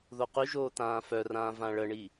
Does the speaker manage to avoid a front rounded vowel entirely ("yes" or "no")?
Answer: no